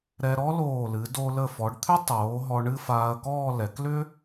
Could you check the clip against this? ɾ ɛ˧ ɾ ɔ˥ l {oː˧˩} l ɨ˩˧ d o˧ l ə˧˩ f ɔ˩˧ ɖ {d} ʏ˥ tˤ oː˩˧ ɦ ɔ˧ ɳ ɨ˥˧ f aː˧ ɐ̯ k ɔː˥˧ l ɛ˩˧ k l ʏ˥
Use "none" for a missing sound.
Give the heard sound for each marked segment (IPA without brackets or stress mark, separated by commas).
oː˧˩, t̪ʰ